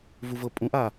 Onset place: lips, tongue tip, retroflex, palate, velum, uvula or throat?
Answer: lips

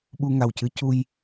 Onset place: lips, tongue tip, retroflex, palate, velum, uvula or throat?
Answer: lips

